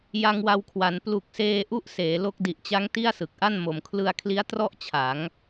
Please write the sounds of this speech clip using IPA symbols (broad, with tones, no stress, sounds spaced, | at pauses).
j a˧ ŋ w a˧ w kʰ w a˩˦ n p l u˨˩ k̚ s eː˧ ʔ u˦˥ ʔ s eː˩˦ l o˦˥ k̚ d i˨˩ ʔ t͡ɕ a˦˥ ŋ t i˥˩ a̯ s ɯ˨˩ k̚ ʔ a˥˩ n m o˨˩ m kʰ l ɯ˧ a̯ kʰ l i˦˥ a̯ t r ɔ˥˩ ʔ t͡ɕʰ a˩˦ ŋ